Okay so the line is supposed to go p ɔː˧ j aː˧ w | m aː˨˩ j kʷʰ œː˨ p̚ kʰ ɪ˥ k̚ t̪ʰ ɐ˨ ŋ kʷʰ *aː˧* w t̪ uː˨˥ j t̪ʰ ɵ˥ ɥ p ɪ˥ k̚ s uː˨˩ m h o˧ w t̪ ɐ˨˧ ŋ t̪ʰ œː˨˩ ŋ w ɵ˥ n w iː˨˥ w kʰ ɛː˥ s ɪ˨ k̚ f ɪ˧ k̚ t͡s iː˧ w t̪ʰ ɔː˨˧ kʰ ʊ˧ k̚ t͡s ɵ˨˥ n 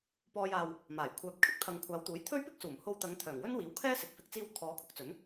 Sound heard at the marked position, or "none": aː˨˧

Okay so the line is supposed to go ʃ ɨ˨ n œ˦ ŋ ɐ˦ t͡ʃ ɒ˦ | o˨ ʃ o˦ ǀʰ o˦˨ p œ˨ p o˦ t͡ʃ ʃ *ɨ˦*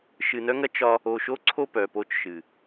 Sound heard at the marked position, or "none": ɨ˨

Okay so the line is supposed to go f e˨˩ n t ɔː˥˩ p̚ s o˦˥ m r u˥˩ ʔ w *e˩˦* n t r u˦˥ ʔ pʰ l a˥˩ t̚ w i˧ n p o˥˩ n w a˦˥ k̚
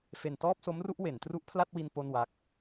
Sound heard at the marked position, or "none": e˩˦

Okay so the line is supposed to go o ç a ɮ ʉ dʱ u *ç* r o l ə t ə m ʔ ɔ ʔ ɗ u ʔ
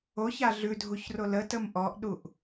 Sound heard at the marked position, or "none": ç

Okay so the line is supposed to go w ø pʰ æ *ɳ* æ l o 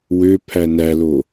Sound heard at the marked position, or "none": n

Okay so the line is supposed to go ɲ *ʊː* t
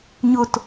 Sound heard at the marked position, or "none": ʊ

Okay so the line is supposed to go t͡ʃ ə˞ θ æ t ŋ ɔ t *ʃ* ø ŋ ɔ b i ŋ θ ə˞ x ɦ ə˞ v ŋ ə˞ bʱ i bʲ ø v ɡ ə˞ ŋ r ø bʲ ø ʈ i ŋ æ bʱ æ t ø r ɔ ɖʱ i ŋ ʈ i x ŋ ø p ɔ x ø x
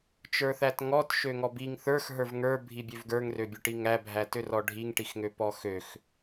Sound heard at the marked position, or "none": ʃ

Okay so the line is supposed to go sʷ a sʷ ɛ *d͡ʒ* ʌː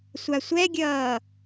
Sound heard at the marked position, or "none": ɡʲ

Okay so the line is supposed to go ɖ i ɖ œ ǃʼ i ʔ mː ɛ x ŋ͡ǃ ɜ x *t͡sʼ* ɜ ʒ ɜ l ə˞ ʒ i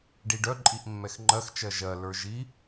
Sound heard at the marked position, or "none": t͡ʃ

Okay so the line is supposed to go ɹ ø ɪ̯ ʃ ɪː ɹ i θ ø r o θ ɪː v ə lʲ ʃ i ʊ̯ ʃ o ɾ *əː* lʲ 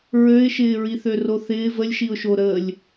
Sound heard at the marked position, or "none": əː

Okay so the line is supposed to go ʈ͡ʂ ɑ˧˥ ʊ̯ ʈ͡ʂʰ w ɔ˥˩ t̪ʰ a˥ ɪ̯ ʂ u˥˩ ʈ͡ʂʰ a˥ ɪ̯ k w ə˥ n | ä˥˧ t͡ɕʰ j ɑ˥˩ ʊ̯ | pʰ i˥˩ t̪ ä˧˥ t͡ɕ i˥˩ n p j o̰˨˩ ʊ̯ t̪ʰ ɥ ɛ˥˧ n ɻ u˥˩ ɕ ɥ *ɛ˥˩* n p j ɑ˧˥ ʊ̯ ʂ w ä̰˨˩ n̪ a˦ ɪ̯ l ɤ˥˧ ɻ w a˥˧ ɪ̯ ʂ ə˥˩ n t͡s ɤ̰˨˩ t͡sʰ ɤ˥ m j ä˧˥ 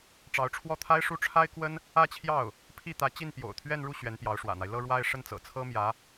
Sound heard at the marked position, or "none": ɛ˧˥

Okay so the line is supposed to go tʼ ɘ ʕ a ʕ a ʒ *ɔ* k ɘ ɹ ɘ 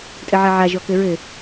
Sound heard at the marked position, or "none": ɔ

